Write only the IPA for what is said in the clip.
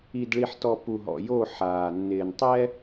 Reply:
i˨dɭi˨ħtɔ˨ pu˨ɦɔ̰˨ jo˦˨ħaː˨nːɪː˨n tˤɛ˦

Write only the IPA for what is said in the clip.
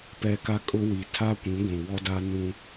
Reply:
pɛ˦ka˦kʼʊ˦wi˨ tʰa˦kʷĩ˨˦ ɡʷũ˨wɔ˦da˦ nũ˦

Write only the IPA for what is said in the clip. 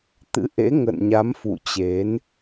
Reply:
t̪ɨ̰˧˥ʔḛ˧˥ ŋə̰ː˧˨nɲa˨˦mfṵ˧˨ t͡ɕe˨˦n

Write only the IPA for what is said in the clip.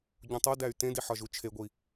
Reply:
ɟũtˤodæy̯ tẽdi ħɒʒut͡ʃʰeɡʷi

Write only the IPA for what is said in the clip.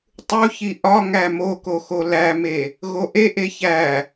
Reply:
tˤu çiʔɒŋæ moko xolæme | ɣoʔeʔe çæ

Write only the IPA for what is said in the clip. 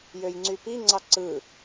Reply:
jøjŋ͡ǀypi ŋ͡ǀɑǀɯ

